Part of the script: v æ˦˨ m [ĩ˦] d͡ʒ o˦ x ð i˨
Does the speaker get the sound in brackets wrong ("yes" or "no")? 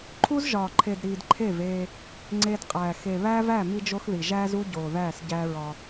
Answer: yes